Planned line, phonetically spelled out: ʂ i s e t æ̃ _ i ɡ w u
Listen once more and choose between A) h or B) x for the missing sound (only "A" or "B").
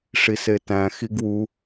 B